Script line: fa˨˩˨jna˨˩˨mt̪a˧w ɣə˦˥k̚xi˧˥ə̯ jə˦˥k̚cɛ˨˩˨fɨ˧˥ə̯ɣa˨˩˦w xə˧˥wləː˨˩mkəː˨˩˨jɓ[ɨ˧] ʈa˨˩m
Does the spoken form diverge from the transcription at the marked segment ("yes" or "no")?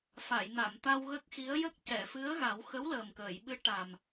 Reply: yes